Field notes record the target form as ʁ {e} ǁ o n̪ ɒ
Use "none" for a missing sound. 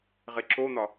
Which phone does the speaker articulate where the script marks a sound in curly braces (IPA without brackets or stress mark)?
e